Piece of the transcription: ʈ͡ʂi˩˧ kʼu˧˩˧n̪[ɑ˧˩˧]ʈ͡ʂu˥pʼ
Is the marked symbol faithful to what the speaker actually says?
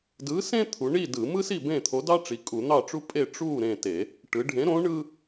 no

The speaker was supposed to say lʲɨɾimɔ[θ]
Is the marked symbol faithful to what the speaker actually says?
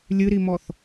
yes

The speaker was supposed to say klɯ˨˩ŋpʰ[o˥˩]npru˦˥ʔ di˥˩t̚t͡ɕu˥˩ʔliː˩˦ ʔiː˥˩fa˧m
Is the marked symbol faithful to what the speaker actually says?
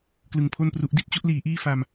yes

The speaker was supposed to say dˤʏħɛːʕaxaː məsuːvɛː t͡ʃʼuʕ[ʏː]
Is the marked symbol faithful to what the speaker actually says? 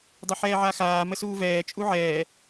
no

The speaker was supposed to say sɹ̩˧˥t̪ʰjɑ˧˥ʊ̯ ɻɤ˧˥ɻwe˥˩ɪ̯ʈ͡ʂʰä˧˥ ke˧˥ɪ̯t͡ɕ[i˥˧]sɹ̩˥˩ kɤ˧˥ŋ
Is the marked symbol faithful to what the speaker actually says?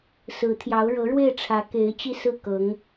yes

